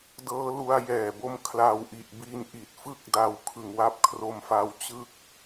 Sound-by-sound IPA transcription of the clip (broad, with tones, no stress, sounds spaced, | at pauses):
d ɤː˦˥ l u˧ a̯ j ɛː˨˩ b o˦˥ m kʰ l a˧ w ʔ i˨˩ ʔ b i˦˥ n ʔ i˨˩ t̚ f ɯ˥˩ k̚ d a˧ w kʰ ɯ˨˩ ŋ w a˦˥ p̚ kʰ r o˧ m f a˧ w t͡ɕ ɯ˦˥ k̚